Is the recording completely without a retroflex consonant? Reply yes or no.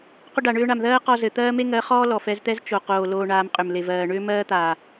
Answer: no